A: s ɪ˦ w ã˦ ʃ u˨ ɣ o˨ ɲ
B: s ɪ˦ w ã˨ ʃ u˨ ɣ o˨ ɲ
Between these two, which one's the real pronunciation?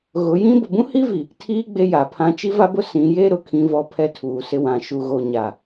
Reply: B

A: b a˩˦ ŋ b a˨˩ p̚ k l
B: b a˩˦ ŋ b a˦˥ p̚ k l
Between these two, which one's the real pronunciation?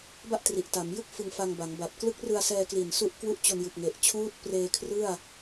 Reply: A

